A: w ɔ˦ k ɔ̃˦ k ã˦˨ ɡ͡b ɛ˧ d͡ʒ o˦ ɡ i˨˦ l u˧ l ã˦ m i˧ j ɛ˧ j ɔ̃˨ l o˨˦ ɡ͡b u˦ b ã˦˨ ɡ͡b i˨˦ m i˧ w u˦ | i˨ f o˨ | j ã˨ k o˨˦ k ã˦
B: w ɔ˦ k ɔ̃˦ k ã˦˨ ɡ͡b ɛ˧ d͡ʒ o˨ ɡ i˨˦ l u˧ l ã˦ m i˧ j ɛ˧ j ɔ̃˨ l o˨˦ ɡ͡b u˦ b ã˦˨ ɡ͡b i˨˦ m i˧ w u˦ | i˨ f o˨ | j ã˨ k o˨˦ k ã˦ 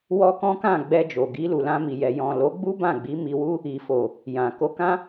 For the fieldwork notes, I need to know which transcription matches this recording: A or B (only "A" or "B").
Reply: B